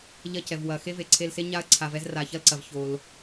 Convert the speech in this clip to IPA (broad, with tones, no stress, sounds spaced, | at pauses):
ʎ ɐ˧ c ɛ˩ v w ɐ˩ x e˥ v e˩ ǀʰ e˧ l s e˥ ɲ a˥ ɐ̯ ǀʰ a˧ v ɛ˥ z r a˧ ç ɐ˥ l ǀ ɐ˩ v ç o˩ l